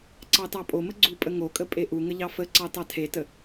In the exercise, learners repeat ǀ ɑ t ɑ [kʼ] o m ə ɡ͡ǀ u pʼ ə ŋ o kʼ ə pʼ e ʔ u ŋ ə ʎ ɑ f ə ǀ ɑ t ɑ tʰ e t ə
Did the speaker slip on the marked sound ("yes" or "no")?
yes